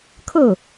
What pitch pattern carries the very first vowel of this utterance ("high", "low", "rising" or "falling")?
falling